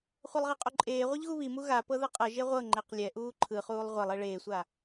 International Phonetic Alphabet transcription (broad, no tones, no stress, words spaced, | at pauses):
χʷɤlˠʁiqʼoǃʼeː ʁʷiʎɣuβimu ɣa pɤðɤqʼɤ ʒeʁʷɤ ŋ͡ǃeqlʲɛʔuː ǃʰɯχuːlˠ ʁʷɛlˠe ɭeːsʷa